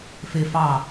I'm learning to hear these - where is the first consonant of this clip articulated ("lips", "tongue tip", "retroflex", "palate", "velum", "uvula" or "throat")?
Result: lips